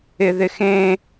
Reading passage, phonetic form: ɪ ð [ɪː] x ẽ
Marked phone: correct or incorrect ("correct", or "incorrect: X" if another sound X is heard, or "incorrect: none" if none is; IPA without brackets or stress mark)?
incorrect: ɪ